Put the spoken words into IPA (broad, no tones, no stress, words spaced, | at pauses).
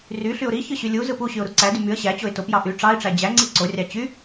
ryɬyʊ̯ ɾiçɯ ɕylʲuzɯp uɕyʊ̯ ɾuǀædy myə̯ ɕæt͡ɕoɪ̯ topjɑ ʔy ʈ͡ʂɑɪ̯ʈ͡ʂæ d͡ʑæŋ͡ǀi ǀorʲɑ t͡ɕy